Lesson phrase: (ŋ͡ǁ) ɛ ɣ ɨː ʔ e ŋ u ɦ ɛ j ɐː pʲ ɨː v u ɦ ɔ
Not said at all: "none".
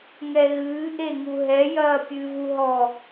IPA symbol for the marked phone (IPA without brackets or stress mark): ŋ